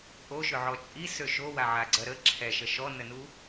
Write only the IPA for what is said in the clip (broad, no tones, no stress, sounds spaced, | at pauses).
ʔ o ʃ ʏ ʕ ɔ t͡ʃʼ i s ø ʃ o w a ʕ a ɡ͡ǀ ɐ ɾ ə ǁʰ ɛ ʃ ə ʃ ɔ n ə n u